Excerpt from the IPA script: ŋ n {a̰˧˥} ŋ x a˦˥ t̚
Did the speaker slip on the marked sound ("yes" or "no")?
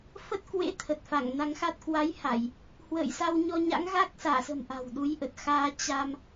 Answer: yes